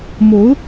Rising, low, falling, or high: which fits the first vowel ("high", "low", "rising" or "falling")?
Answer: rising